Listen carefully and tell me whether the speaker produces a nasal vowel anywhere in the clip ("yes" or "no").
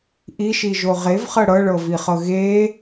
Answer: no